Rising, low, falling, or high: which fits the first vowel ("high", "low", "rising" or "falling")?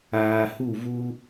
low